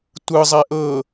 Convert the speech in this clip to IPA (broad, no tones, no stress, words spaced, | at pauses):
tʷɯzˤɛ ʔɤ